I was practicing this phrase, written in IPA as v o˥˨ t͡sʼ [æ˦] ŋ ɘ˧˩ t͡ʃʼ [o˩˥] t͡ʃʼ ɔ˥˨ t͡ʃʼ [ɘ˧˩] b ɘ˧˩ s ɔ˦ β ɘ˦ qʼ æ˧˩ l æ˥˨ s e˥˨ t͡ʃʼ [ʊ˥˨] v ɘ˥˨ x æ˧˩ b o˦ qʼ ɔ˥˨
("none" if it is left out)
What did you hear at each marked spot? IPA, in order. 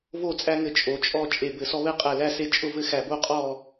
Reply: æ˦, o˩˥, e˧˩, ʊ˥˨

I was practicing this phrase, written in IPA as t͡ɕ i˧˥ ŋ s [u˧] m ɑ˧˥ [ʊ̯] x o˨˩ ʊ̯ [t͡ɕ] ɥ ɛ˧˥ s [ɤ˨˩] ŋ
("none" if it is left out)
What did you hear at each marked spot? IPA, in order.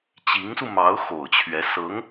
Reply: u˧, ʊ̯, t͡ɕʰ, ɤ˧˥

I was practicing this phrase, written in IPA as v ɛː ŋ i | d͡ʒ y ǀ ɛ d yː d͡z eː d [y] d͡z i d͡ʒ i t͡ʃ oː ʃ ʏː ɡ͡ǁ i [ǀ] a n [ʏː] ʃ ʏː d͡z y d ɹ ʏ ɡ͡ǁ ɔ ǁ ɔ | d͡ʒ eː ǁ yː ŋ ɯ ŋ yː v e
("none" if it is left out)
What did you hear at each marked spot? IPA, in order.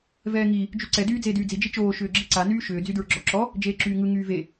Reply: yː, ǀ, yː

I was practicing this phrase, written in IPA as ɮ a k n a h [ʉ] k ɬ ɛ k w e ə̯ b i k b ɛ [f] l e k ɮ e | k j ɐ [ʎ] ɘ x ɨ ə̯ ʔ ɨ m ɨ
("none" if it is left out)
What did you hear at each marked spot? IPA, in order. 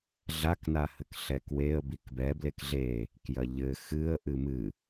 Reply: ɘ, b, ʎ

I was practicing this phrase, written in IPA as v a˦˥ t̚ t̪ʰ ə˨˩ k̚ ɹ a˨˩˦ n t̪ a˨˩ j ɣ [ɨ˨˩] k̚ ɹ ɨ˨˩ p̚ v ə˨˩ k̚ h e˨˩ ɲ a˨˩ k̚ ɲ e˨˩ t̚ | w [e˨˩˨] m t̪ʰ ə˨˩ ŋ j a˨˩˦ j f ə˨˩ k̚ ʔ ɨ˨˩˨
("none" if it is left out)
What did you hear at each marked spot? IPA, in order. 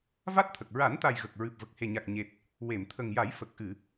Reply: ə˨˩, e˨˩˨

